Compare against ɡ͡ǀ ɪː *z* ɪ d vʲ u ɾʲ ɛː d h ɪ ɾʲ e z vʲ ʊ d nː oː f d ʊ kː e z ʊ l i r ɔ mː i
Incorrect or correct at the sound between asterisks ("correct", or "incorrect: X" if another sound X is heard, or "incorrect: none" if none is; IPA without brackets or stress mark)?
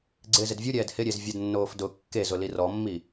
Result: correct